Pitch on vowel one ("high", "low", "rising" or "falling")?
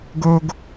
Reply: low